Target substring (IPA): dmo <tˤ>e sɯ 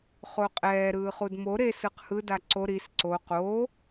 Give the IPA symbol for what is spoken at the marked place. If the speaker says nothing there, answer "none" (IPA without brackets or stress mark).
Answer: ɾ